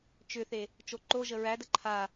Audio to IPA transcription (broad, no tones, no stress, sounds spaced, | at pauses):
t͡ʃ ʏ θ e | t͡ʃ o ǃ o ʒ ə ɹ æ d ə ǃʰ a